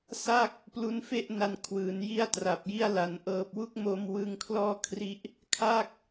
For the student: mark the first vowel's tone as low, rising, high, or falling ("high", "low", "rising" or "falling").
falling